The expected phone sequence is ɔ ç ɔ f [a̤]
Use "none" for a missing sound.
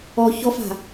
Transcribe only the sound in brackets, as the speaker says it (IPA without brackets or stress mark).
a̤